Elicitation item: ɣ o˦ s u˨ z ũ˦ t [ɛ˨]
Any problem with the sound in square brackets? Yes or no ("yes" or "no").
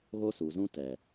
no